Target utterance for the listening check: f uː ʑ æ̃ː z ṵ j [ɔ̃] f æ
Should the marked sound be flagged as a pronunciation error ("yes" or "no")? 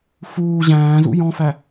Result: no